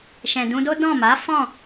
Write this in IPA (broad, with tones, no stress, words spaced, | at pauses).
ʃɛ̃˨dũ˧do˦ dɔ̃˦˨ ma˨˦ fɔ̃˦˨